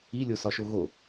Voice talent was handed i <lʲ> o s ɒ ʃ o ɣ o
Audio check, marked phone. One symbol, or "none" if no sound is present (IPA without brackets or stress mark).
lʲ